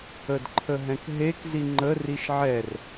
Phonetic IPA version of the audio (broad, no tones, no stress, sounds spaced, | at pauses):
ə d ǃʰ ə ɦ ɛ̃ k ɦ e k z i ŋ͡ǃ ə r i ʃ ʕ ɛ r